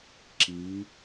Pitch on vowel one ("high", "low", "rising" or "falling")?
rising